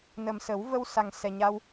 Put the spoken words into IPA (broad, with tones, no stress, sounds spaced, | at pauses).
n ə˨˩ m s ə˨˩˦ w v ə˧ w s a˨˩ ŋ s ɛ˨˩ ɲ a˧ w